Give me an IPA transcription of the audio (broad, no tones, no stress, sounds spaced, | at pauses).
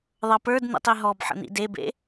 ðˤ ɤ p ə˞ d n̪ ḭ tˤ i ɦ ɔ b ħ ə̰ n̪ ḭ d e b ḛ